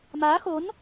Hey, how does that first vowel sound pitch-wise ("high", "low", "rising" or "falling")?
rising